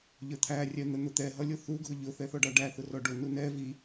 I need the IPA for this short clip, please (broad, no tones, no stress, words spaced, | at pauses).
ʎə˞t̪ʰæ rʲɛn̪ən̪ʊt̪ɛ ɦʌlʲʊθu ɡʱʊʎʊ θɛθɔɖɑɖæ θʊrɔɖʊ nunɛ vi